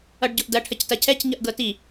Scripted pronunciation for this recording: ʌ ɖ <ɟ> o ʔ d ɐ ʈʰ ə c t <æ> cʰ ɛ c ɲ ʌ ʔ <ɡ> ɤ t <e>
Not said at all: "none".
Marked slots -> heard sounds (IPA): ɟ, ɐ, ɡ, i

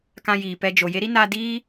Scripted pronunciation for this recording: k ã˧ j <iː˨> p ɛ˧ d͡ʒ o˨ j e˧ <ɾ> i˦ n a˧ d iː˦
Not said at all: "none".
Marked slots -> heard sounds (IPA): iː˨, ɾ

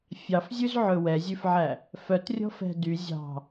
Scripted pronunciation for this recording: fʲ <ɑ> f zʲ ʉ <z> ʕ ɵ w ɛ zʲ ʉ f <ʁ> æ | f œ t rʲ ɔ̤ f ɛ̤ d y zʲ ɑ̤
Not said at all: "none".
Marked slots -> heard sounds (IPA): ɑ, z, ʕ

